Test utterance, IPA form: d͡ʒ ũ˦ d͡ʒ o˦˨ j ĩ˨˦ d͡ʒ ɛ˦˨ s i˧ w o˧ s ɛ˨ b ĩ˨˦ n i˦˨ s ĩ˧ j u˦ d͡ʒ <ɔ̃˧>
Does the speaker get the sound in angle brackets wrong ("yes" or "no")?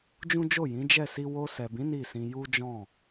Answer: yes